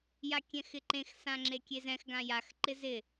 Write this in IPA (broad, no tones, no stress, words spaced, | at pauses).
jakʲɛ̃xɪǃẽx sãŋ͡ǁekʲezɛ̃x ɡãjax ǃɪzɪ